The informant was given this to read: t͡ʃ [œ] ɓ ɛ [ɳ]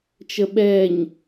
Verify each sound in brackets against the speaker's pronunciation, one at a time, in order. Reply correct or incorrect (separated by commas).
incorrect, incorrect